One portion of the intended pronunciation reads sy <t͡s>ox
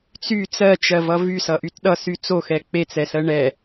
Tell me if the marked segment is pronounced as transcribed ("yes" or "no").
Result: yes